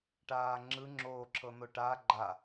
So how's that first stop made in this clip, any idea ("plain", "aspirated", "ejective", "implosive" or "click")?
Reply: plain